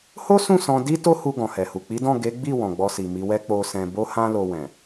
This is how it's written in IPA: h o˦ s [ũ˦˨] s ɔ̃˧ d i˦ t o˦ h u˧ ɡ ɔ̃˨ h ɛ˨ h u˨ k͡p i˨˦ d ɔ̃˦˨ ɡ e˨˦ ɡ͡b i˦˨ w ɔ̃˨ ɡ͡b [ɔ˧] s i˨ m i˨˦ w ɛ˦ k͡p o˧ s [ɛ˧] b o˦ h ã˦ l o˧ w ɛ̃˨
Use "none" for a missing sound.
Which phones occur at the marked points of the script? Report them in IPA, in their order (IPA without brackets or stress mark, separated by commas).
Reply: ũ˦˨, ɔ˧, ɛ̃˧